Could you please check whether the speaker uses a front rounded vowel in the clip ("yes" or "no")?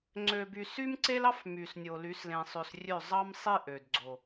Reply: yes